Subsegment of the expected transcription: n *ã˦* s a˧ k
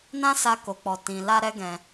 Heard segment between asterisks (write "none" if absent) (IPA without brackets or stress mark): ã˦